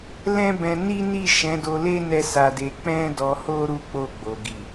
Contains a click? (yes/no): no